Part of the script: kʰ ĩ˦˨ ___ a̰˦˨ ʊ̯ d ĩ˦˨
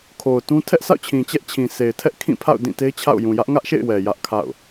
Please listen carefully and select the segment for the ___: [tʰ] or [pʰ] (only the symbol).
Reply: pʰ